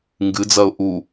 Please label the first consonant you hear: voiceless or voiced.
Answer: voiced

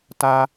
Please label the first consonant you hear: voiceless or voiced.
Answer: voiceless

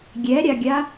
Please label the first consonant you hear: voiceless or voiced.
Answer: voiced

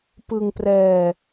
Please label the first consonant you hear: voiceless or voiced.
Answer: voiceless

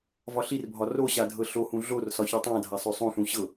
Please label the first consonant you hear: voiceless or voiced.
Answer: voiced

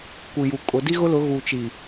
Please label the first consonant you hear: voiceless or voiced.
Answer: voiceless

